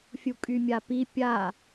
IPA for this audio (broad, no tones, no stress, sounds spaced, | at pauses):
fʲ u kʼ y mʲ a p i pʲ a